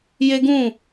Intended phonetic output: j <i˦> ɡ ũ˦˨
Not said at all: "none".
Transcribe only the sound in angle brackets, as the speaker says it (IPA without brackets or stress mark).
e˦